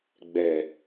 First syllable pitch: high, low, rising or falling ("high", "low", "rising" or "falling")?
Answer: low